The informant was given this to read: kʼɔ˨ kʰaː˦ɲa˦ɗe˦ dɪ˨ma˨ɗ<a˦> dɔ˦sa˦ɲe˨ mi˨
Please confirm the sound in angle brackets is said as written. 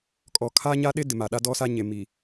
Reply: yes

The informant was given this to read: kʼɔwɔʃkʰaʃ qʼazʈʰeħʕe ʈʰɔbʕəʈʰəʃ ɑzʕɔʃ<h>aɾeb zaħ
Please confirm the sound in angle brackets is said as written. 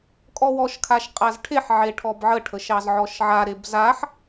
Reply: no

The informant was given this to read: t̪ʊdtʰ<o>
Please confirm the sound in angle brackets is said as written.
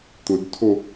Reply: yes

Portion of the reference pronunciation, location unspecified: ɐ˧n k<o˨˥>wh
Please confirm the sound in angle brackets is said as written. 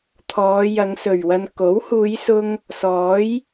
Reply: yes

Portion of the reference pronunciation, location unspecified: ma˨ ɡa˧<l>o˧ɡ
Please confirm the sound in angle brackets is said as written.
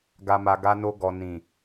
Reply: no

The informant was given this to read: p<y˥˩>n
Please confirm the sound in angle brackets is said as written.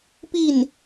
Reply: no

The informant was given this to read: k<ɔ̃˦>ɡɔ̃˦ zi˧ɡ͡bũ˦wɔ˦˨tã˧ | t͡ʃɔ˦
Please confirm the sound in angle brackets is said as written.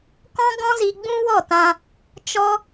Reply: yes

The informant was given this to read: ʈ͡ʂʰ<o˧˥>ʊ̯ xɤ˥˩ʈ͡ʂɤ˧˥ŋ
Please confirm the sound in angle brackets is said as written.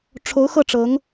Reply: yes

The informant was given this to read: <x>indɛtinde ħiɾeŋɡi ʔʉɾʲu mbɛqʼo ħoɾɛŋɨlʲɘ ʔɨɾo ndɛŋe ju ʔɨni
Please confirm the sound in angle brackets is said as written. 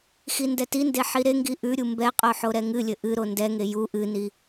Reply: yes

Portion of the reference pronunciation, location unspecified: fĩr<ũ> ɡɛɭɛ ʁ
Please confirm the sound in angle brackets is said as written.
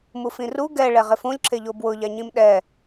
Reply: no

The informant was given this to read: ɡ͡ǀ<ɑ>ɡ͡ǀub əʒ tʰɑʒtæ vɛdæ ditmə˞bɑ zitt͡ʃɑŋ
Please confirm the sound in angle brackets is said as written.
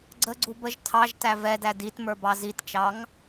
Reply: no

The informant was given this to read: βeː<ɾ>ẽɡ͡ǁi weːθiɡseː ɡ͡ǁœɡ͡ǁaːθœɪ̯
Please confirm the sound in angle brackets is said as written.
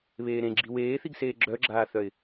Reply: yes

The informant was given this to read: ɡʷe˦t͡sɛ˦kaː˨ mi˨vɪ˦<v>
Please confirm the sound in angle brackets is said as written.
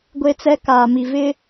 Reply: no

